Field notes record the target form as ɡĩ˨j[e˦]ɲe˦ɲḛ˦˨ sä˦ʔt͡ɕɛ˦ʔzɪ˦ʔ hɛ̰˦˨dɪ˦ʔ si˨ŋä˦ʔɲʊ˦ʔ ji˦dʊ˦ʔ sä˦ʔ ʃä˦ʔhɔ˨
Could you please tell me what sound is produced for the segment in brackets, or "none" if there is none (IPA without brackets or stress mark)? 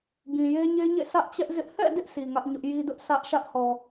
e˦